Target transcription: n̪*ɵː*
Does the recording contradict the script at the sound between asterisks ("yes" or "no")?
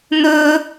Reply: no